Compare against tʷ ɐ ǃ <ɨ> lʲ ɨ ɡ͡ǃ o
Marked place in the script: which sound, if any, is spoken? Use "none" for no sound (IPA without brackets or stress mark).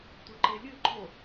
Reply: e